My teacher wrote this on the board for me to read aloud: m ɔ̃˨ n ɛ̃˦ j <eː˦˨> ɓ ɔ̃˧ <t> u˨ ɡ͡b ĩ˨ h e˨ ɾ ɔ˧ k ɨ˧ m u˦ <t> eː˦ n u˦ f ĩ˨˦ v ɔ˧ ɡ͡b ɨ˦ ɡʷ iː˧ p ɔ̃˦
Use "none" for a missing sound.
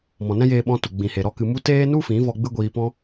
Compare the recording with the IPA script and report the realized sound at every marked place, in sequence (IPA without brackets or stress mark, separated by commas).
eː˧, t, t